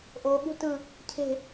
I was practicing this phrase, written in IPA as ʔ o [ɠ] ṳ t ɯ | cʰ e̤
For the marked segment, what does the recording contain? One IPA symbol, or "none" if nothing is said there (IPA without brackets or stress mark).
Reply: ɠ